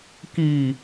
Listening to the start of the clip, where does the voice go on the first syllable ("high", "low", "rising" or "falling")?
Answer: low